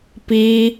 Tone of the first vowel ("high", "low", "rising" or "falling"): high